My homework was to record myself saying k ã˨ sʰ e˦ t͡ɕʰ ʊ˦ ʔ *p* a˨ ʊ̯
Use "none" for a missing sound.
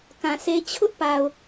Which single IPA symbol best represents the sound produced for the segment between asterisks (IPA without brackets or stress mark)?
p